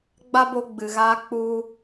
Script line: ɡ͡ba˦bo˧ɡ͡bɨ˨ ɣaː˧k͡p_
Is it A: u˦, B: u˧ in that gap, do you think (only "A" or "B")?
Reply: B